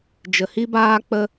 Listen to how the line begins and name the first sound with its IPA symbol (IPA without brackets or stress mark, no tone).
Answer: d͡ʒ